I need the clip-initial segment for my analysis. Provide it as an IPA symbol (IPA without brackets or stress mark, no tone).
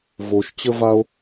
v